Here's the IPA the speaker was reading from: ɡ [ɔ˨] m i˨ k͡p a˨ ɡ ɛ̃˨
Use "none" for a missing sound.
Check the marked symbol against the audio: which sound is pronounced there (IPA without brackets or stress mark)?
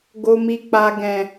o˨